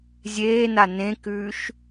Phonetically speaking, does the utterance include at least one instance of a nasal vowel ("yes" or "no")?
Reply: yes